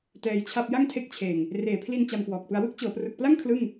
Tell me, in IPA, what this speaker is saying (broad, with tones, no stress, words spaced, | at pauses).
tɛː˧jt͡ɕʰa˥˩p̚ ja˥˩ŋtʰe˦˥k̚t͡ɕʰeː˨˩ŋ | reː˨˩pʰli˧n t͡ɕa˧mkwɔː˨˩k̚pɯ˧a̯ wɯ˥˩k̚t͡ɕɤː˩˦prɯ˨˩k̚pla˥˩ŋ kʰlɯ˥˩ŋ